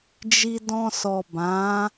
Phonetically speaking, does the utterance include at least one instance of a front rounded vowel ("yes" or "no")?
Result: no